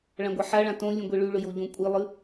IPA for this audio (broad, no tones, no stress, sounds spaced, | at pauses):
ɭ ã ɡʷ a ħ a ɭ ã t õ lʲ ũ ɡʷ e ɭ ʉ ɭ ɵ j o ʎ õ kʷʼ i lˠ ɨ